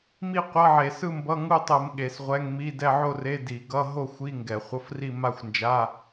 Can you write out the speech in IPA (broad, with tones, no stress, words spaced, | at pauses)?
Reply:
mi˥˧qʷʌ˧˥˧ʕe˧˩˧sɯ˥˧ mbʌ˧˥˧ŋu˥˧tˤɯ˧˩˧m ɠe˧˩˧sʁʷɛ˧˥˧ŋmi˧˥˧ dɛ˥˧ʕo˥˧re˧˥˧ di˧˩˧ ɡʌ˧˥˧ ɦo˥˧xʷi˧˥˧ŋɡɛ˧˩˧ χʷʌ˧˥˧fri˥˧ ma˥˧xʷnd͡ʒa˧˥˧